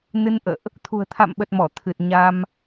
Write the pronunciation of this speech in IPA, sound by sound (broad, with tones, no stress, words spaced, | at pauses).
nɨ˧nʔə̰ː˧˨ʔ | t̪ʰṳ˨˩ə̯t̪ʰa̰˧˨mɓə˨˩t̚ mɔ˧˩t̪ʰɨ˨˩t̚ ɲa˧m